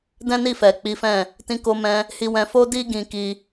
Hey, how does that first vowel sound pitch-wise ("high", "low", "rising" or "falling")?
high